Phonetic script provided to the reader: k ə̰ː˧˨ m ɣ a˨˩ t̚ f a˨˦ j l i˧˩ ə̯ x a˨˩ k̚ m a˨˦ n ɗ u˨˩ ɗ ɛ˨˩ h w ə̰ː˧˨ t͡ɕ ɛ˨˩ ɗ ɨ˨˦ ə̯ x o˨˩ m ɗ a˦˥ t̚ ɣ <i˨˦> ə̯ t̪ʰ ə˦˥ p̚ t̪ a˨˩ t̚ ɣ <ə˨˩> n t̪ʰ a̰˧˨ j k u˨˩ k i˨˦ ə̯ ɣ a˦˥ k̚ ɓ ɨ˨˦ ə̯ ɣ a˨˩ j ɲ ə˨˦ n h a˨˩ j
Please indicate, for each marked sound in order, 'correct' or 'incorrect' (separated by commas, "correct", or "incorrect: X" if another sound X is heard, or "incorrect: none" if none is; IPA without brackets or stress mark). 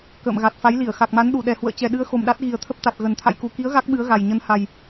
incorrect: i˨˩, correct